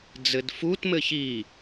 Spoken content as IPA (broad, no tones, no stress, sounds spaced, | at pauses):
d͡z ɘ d f u t m ɘ ç i